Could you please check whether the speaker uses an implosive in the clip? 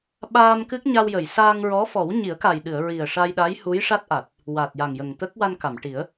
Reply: yes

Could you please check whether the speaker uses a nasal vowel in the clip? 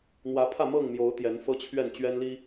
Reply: no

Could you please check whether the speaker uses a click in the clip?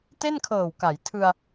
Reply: no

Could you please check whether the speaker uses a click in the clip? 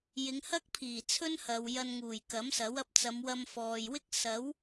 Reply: no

